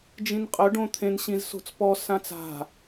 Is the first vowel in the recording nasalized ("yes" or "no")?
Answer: yes